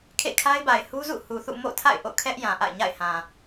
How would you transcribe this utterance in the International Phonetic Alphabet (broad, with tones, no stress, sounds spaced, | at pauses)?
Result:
kʰ ḛ˦˨ kʰ a˦ ɪ̯ b a˨ ɪ̯ h u˦ z ṵ˦˨ h u˨ θ ṵ˦˨ m o̰˦˨ tʰ a̰˦˨ ɪ̯ ʔ o̰˦˨ kʰ ɛ˦ ʔ j ã˨ ʔ a̰˦˨ ɪ̯ ɲ a̰˦˨ ɪ̯ h ã˨